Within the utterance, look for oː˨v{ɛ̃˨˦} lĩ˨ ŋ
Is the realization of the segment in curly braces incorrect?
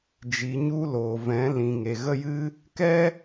no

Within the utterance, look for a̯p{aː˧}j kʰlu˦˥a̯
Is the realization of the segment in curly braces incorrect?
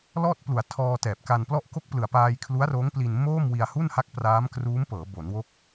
no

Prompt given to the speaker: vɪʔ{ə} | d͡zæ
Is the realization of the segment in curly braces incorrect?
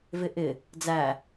yes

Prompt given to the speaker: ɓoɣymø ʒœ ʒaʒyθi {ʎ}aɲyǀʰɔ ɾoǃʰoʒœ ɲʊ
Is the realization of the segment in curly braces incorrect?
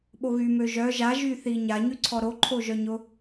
yes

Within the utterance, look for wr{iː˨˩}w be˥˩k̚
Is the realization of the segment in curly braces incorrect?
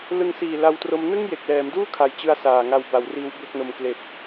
yes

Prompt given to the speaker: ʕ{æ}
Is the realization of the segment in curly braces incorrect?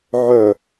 yes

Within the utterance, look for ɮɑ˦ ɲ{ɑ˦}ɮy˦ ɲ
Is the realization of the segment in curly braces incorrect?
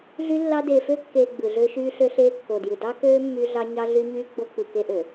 no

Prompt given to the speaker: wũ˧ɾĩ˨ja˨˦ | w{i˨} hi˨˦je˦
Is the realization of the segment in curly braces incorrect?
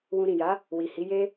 no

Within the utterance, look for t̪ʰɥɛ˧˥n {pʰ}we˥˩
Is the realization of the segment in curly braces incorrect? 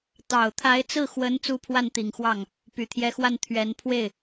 no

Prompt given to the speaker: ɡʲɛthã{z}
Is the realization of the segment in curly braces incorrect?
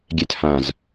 no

